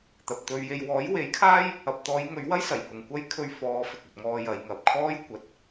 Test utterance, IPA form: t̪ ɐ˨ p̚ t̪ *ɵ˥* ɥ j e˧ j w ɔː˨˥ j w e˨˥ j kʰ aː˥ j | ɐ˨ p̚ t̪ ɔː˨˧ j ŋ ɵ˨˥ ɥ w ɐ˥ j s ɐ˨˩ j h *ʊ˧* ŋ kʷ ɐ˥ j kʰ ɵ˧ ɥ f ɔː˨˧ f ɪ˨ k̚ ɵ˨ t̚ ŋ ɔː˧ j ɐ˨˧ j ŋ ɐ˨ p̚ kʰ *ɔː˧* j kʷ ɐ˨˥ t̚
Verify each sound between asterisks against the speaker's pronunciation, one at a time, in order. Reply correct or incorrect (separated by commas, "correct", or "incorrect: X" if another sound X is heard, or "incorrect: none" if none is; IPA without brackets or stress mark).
incorrect: ɵ˧, incorrect: ʊ˨, incorrect: ɔː˥